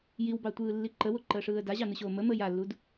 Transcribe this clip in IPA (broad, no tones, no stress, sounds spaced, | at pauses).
j i w b ɑ tʷ ɯː lː i ǃ ə w o ǃ əː ʂ ɯː ə̯ d a ʑ ɑ n ɯ ɕ oː m ə m əː j a lː u d